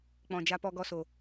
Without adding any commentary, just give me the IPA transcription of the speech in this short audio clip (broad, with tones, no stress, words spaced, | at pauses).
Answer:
k͡pɔ̃˨d͡ʒa˧ pɔ˧ ɡɔ˧so˨